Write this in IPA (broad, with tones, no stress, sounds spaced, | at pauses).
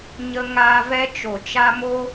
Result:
ɲ ə˧ ŋ aː˧ v ɛ˧ t͡ʃ o˨ t͡ʃ a˧ m o˦